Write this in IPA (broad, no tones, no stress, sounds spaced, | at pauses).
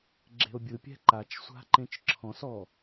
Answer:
ɡ͡ǁ e̤ o̯ bʲ ɯ pʲ ɛ̤ ǃ a t͡ʃ sʷ a̤ ǃ ẽ t͡ʃ ǁʰ ɔ̃ s ɔ